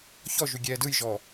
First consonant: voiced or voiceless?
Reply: voiceless